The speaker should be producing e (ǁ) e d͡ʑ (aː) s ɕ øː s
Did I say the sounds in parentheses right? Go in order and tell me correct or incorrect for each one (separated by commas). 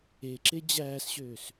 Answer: correct, incorrect